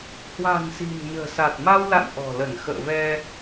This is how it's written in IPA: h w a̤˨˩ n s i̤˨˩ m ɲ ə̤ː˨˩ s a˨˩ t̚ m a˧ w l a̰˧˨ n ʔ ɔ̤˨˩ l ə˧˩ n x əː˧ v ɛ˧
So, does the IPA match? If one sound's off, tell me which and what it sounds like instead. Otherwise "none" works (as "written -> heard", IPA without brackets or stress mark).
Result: əː˧ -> ə̰ː˧˨